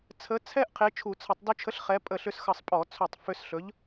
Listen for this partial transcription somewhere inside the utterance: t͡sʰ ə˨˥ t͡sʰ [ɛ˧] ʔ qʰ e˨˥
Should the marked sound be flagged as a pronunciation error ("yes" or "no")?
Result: yes